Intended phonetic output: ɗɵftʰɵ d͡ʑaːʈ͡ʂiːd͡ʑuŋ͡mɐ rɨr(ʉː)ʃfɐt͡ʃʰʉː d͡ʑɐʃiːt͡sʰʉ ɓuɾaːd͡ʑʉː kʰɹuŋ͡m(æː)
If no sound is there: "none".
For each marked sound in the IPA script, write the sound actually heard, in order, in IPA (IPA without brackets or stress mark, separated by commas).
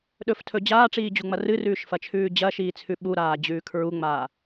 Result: ʉː, aː